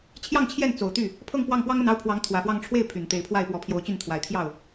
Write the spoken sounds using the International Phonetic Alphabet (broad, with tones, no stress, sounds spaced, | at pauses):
t͡ɕʰ j ɑ˥˧ ŋ t͡ɕʰ j ɛ˥˩ n t͡s o˨˩ ʊ̯ t̪ y˥˩ | pʰ ɤ˥˧ ŋ p w ɑ˥˩ ŋ p w ɑ˥ ŋ ə˥˩ n ɑ˥ ʊ̯ pʰ w ɑ˧˥ ŋ t̪ʰ w ä˨˩ f w ɑ˥˧ ŋ ʈ͡ʂʰ w e˥˩ ɪ̯ pʰ y˨˩ n t̪ e˧˥ ɪ̯ pʰ w a˥˩ ɪ̯ p w ɔ˧˥ pʰ j o˧˥ ʊ̯ t͡ɕ y˥˩ n t̪ʰ w a˨˩ ɪ̯ t̪ʰ j ɑ˥˩ ʊ̯